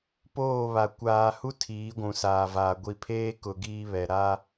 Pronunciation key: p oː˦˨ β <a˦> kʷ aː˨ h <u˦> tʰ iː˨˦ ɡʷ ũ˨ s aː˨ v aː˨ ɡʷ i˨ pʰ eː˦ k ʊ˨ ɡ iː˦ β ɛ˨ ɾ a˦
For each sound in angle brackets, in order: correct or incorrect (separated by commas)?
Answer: incorrect, correct